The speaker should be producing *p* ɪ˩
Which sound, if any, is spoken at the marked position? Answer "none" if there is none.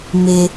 m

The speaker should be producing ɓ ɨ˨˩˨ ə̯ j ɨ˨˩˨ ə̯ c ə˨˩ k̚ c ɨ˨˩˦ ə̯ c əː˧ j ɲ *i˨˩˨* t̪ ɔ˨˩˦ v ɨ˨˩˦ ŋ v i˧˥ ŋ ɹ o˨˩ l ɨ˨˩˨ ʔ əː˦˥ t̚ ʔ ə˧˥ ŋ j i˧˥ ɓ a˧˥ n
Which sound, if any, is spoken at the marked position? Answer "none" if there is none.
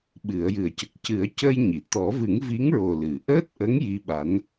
i˨˩˨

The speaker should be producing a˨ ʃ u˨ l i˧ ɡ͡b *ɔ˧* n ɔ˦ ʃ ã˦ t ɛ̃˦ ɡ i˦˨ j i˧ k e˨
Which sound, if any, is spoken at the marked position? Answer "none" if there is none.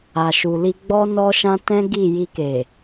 ɔ˦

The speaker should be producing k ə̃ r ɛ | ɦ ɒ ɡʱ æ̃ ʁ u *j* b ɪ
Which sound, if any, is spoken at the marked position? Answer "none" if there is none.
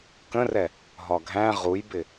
j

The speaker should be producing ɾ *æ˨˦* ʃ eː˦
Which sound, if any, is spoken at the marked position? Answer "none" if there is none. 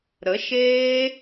ə˨˦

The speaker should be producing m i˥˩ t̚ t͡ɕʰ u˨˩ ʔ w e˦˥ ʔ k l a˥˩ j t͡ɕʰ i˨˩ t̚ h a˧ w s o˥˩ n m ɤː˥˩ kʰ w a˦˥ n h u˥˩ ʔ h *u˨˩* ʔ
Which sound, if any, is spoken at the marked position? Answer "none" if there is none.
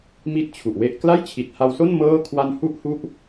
u˥˩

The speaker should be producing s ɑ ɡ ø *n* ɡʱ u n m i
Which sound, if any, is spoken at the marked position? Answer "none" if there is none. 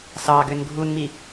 n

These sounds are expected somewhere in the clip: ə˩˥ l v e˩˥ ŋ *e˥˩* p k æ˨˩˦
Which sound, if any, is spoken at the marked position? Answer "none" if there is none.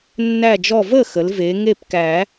e˥˩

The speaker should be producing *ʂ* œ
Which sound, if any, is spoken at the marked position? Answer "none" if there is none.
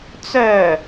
t͡s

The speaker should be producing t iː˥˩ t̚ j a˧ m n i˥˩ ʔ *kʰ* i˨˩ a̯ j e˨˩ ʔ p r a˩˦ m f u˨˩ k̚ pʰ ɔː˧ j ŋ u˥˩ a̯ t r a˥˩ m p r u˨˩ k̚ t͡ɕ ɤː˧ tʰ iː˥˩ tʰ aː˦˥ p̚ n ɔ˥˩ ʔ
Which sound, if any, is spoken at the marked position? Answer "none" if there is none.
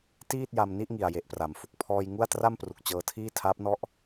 ŋ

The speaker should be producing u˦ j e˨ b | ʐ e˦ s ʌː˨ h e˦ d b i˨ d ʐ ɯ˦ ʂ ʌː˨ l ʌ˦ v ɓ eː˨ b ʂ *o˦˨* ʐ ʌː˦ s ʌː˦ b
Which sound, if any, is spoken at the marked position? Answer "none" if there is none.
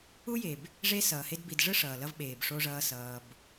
o˦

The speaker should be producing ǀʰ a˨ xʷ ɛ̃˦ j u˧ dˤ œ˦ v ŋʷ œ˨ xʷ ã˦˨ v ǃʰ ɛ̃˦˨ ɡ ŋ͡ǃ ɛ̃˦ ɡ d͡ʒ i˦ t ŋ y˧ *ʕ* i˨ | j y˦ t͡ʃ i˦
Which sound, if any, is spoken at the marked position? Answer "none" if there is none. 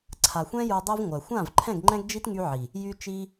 ʕ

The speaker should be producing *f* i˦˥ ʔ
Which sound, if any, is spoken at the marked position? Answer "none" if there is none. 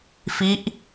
f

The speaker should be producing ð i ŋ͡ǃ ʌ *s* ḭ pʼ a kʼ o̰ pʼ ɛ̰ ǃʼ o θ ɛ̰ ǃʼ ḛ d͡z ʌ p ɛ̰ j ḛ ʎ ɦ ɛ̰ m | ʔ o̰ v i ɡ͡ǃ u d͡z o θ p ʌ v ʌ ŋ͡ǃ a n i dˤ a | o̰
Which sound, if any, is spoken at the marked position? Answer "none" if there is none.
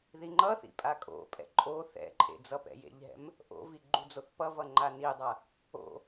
θ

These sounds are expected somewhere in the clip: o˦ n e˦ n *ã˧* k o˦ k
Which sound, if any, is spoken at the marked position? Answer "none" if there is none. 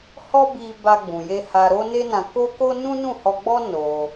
ã˧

